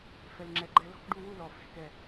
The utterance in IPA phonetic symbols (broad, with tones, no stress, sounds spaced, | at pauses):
f ɛ˧ l ŋ͡ǁ ɛ˧ ɡ͡ǃ ɛ˧ l ɔ̤˥˧ k ɖ u˥˧ w u˥˧ l ɔ˨˩ f ɛ̤˨˩ k ɛ˨˩